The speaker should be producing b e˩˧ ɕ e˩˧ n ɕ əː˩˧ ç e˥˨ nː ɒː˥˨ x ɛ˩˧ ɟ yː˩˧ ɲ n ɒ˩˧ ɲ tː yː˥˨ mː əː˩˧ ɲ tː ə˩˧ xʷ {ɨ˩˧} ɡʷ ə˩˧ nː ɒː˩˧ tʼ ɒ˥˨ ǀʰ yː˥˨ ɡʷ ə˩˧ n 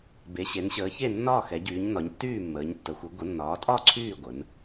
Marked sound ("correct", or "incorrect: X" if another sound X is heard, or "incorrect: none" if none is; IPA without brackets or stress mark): correct